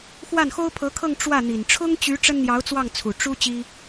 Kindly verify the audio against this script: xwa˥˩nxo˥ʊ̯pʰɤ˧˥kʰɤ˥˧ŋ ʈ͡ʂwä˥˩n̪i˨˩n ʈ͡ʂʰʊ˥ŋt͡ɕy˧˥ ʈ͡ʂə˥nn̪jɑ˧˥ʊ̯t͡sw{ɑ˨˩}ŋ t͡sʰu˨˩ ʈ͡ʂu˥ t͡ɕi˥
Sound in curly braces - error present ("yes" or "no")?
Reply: yes